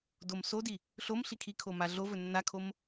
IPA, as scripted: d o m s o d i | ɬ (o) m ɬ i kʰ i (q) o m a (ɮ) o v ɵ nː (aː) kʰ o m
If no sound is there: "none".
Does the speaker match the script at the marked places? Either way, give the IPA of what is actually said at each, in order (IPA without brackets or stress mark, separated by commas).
o, kʰ, ɮ, a